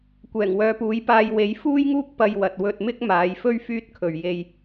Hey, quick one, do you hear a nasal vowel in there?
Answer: no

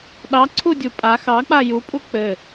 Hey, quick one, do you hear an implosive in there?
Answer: yes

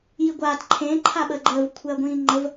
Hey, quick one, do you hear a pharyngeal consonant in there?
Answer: no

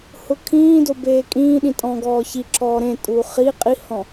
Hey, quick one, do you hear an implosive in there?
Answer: yes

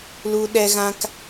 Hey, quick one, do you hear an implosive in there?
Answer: yes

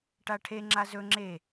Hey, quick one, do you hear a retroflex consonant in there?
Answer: yes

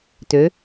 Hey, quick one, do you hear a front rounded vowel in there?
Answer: yes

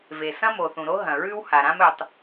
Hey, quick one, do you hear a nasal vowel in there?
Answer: yes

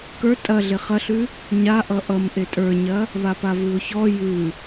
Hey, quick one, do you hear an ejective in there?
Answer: yes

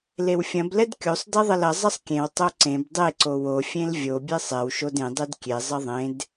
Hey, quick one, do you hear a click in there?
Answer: yes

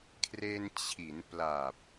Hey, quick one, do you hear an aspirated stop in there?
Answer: yes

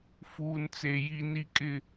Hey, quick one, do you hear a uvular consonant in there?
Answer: no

